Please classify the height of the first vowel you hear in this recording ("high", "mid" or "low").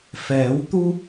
mid